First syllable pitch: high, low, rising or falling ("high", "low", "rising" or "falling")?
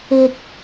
low